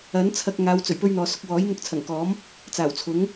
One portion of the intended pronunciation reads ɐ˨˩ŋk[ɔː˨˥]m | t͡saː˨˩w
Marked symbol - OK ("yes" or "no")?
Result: yes